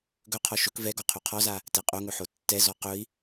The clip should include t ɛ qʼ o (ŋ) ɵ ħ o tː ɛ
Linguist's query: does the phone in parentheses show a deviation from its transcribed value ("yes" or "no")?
no